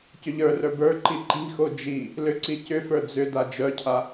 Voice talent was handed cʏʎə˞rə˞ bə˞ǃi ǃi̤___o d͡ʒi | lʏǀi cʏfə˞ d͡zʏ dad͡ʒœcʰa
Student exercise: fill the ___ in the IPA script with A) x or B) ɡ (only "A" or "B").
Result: A